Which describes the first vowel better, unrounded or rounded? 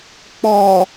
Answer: rounded